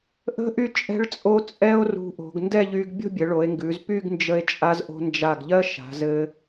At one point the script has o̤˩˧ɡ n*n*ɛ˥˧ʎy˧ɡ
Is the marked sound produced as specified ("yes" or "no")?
no